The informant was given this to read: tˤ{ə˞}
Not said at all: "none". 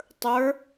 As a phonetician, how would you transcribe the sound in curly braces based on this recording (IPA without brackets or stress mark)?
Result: ə˞